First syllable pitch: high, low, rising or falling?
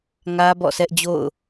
high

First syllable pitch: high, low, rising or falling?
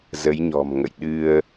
rising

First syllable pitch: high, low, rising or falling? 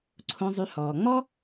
low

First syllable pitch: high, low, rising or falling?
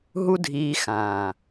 high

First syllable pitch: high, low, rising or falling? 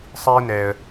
high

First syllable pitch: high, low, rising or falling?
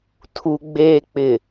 low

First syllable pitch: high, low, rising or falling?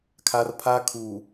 high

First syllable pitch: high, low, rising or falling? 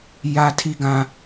high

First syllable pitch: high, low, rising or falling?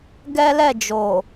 high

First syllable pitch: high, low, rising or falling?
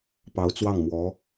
rising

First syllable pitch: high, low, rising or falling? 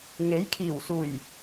rising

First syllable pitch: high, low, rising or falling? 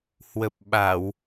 low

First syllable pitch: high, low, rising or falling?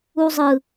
high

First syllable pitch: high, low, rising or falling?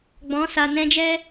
rising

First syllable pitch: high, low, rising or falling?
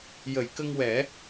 low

